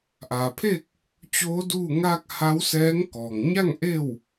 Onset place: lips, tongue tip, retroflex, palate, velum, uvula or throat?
throat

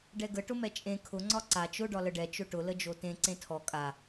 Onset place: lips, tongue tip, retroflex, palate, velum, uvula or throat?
retroflex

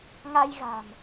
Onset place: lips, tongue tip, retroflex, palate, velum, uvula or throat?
velum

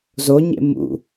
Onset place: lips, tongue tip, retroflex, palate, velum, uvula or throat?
tongue tip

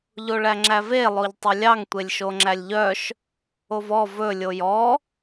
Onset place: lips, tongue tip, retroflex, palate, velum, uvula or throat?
palate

